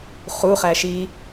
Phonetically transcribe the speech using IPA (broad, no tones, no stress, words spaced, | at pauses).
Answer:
χuχæʃi